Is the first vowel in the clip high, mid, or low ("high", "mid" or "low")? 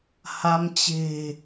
low